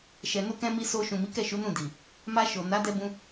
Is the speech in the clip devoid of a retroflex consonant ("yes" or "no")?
yes